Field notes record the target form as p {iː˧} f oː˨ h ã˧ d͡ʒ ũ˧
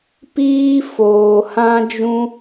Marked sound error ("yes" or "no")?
no